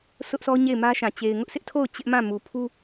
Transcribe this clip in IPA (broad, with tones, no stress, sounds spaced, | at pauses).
s ʊ˦ ʔ s ɔ˦ ɲ e˦˨ ɪ̯ m ä˦ ʃ ã˨ t͡ɕ e˨ ɪ̯ ŋ ʊ˦ ʔ s ɪ˦ ʔ tʰ o˦˨ ʊ̯ t͡ɕ ɪ˦ ʔ m ã˦˨ m u˨ pʰ u˦